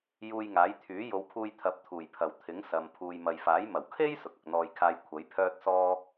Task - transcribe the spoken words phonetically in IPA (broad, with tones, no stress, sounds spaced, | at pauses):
j uː˧ j ŋ aː˨˥ j t̪ʰ yː˨˥ j o˨˧ w pʰ uː˧ j t̪ʰ ɐ˨˥ p̚ t̪ʰ uː˨˩ j pʰ ɐ˨˩ w t̪ʰ ɪ˨˥ ŋ s ɐ˨ m pʰ uː˨ j m ɐ˨ j f aː˨˥ j m ɐ˨˩ w kʰ e˥ j s ʊ˨ k̚ ɐ˨ k̚ n̪ ɔː˧ j kʰ aː˧ j kʷʰ ɐ˨˥ j pʰ œː˥ t̚ s ɔː˥